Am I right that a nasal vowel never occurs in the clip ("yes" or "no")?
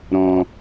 no